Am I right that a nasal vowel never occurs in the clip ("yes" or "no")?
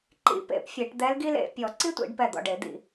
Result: yes